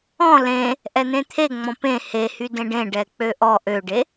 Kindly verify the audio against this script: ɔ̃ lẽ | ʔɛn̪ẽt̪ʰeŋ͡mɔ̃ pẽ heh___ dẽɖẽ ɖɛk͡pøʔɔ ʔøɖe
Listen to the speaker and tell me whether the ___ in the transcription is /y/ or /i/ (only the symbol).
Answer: y